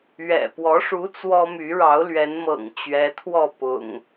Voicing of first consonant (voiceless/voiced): voiced